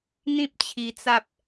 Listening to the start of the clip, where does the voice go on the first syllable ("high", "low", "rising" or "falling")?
high